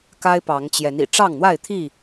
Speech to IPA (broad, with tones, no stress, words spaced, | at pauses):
ka˦ɪ̯pɑ˨˦ŋt͡ɕjɛ˨˦nḭ˨˩ ʈ͡ʂɑ˥˨ŋn̪wa˥˨ɪ̯t̪ʰi˥˨